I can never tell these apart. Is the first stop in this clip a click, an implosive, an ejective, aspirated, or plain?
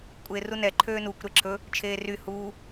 ejective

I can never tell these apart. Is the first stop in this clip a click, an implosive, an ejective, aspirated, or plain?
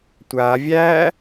plain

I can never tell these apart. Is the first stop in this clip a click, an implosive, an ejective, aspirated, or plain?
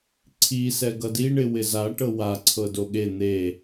click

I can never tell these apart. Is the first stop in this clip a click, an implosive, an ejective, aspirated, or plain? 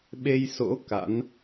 implosive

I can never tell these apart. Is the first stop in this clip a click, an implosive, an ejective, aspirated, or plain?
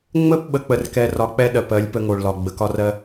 plain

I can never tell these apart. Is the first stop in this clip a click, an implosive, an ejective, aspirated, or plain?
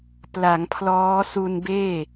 plain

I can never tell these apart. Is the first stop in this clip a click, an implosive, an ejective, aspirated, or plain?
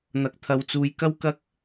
plain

